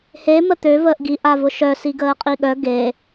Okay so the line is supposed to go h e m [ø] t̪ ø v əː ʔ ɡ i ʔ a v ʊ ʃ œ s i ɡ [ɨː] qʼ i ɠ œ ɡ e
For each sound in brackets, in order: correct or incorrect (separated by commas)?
incorrect, incorrect